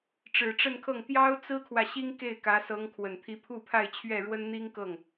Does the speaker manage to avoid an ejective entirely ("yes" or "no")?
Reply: yes